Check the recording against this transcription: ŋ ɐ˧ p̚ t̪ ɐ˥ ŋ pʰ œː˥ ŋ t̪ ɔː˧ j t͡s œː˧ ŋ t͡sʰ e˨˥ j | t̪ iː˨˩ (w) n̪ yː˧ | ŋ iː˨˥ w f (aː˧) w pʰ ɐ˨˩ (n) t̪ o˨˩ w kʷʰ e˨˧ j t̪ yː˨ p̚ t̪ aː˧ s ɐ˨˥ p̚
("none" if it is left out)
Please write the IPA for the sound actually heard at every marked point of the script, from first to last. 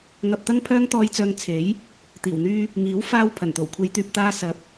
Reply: w, aː˧, n

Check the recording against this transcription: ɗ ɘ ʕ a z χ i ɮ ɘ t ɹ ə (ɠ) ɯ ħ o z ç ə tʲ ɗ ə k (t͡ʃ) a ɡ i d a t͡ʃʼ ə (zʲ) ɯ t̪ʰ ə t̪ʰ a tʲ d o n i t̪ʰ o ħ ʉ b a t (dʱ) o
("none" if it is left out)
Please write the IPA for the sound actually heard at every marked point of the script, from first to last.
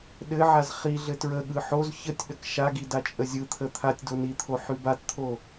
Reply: ɠ, ʃ, zʲ, t̪ʰ

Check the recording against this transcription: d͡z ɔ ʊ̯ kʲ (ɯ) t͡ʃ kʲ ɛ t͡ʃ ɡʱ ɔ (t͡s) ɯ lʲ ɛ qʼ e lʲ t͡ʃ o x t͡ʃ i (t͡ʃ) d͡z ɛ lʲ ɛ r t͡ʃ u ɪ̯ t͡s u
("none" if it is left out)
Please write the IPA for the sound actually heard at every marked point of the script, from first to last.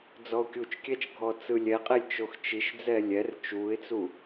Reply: u, t͡s, ʃ

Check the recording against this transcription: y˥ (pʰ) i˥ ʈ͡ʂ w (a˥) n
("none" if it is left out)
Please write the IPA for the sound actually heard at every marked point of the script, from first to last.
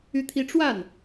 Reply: t̪ʰ, a˥˩

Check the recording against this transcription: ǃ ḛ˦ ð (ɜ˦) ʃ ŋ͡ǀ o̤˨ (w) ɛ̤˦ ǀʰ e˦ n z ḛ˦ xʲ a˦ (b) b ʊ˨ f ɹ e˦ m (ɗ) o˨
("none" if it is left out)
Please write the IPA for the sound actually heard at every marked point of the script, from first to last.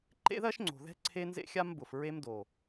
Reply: ɜ˦, ð, m, d

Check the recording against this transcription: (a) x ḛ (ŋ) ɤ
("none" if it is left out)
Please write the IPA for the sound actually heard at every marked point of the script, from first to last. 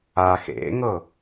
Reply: a, ŋ

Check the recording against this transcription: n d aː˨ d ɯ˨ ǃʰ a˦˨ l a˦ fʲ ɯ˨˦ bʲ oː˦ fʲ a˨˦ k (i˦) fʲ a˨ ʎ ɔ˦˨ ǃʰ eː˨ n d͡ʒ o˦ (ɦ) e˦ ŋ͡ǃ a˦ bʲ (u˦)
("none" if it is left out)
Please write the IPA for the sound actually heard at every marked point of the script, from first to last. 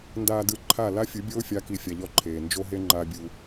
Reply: i˨, ɦ, u˦

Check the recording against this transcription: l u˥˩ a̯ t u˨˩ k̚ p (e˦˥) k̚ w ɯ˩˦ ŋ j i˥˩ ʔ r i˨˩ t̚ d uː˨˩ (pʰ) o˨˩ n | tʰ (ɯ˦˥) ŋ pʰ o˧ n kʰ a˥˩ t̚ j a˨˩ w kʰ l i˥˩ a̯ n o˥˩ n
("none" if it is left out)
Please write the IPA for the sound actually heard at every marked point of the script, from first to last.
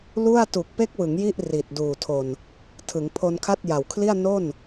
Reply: e˦˥, tʰ, ɯ˩˦

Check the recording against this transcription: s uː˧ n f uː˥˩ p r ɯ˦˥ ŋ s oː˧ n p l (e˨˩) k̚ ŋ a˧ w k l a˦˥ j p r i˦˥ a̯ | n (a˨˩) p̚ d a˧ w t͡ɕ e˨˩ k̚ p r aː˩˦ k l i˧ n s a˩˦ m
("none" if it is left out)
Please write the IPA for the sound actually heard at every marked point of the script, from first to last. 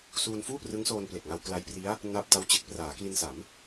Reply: e˨˩, a˦˥

